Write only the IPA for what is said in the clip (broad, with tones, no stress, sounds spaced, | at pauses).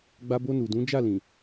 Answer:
ɡ͡b a˧ b o˧ n u˨ d ũ˨˦ d͡ʒ a˦˨ l ĩ˨